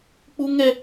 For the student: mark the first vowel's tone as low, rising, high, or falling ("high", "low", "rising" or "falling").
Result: high